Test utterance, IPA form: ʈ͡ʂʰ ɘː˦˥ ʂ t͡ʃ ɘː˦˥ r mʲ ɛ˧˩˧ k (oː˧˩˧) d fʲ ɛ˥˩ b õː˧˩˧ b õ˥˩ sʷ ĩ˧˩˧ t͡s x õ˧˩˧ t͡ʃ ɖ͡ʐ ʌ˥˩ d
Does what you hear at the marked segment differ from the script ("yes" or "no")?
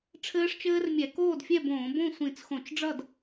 yes